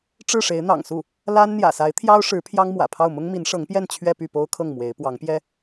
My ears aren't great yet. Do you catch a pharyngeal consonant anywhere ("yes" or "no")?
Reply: no